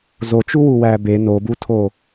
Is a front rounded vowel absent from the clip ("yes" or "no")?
yes